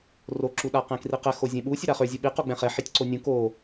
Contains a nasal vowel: yes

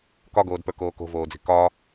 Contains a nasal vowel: no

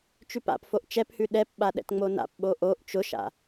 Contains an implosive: yes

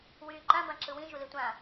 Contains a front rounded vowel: yes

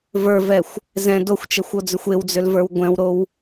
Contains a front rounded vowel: yes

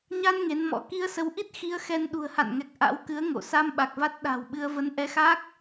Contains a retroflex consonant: no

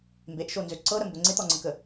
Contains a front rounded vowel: yes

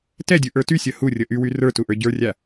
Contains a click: no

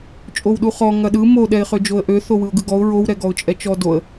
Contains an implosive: yes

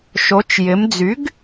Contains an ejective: no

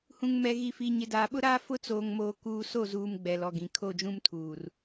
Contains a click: no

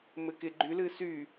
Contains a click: yes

